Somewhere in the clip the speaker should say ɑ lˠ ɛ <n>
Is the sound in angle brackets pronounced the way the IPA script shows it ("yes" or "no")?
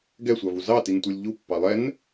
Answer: yes